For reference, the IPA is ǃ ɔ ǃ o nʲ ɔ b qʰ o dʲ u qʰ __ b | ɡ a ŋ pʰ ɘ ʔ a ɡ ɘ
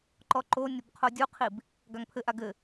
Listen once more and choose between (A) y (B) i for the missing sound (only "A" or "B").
B